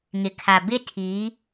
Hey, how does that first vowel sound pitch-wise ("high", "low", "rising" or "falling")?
low